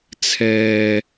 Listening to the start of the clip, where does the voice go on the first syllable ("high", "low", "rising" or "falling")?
low